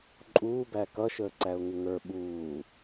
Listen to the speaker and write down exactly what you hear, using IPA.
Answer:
ǃʼ uː b æ k ʌ ʃ əː ǀ æ ʊ̯ ŋ ɪ ŋ ə˞ ɓ uː

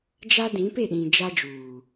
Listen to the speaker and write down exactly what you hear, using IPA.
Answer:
d͡ʒ a˦ d ĩ˨˦ p e˦˨ ɗ ĩ˨ d͡ʒ a˦ d͡ʒ uː˨

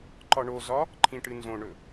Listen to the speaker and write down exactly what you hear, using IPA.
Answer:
ǃ ɒ ɳ o z ɒ | ǃʰ ĩ ʈ ɨ n z õ ɳ ɵ

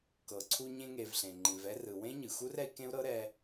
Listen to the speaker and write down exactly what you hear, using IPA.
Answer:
k ɤ˩ ǀʰ u˦ ɲ ẽ˦ ŋ e˨ v ɬ ẽ˩ ŋ͡ǃ ĩ˨ v ɛ˥ r ɯ˨ w ẽ˥ ɲ ɯ˩ x u˥ r ɛ˦ i̯ k ẽ˥ u̯ ɾ ɤ˥ ɾ ɛ˦

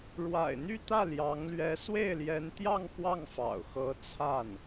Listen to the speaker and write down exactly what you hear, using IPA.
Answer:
ɻ w a̰˨˩ ɪ̯ n̪ y˥˧ t̪ ä˥˩ l j ɑ˧˥ ŋ l ɥ ɛ˧˥ s w e˥˩ ɪ̯ l j ɛ˧˥ n t̪ j ɑ˥˧ ŋ x w ɑ˥˩ ŋ f ɑ̰˨˩ ʊ̯ x ɤ˧˥ t͡sʰ a˥˩ n

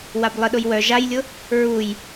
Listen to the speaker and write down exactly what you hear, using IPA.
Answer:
w a b lˠ ə ɗ ʊ j w œ ʒ a j lʲ ʊ | ɹ u j

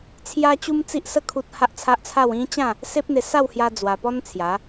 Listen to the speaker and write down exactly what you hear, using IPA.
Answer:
t͡sʰ j a˦ t͡ɕ u˦ m t͡s i˦ ʔ s ə˦ kʰ u˦ t̚ h a˦ ʔ t͡sʰ a˦ ʔ t͡sʰ a˥˧ w ĩ˦ t͡ɕ ã˥˧ | s e˦ p̚ n̪ e˧ s a˥˧ w h j a˦ d͡z w a˧ p ɔ˦ n t͡sʰ j a˨˦

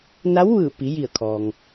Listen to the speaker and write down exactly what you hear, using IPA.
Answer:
n a˧˥ w ʋ ɯː˧˩ p i˩˧ j i˧˩ ə̯ kʰ ɔː˩ ŋ

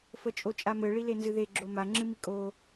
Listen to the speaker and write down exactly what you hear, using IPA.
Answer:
f ə t͡ʃʼ o t͡ʃʼ a m ɘ ɭ i l e n z ɨ ð e ɡ͡ǁ o m a ŋ͡ǁ ɨ m i kʼ o

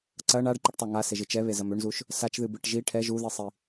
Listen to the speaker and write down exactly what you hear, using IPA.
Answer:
ǀ ɐ ɳ a ɖ ǃ ɨ ʈ tˤ a ŋ a s e ʒ ɨ t͡ʃ ɛ β e z ɐ m ø ɳ z u ʃ | s a t͡ʃ ð ɨ b ɨ ʈ ʒ i ʈʰ ɛ ʒ u ð i sˤ i

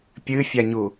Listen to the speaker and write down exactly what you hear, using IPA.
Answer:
pʲ ɨ fʲ a ɲ u

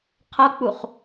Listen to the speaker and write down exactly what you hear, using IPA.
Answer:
qʰ ʌ k͡p u χ

